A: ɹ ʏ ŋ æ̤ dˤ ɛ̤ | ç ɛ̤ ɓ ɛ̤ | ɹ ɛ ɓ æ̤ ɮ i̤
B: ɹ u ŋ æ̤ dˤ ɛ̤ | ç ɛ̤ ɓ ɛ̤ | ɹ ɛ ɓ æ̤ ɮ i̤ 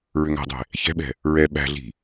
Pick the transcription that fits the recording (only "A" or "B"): A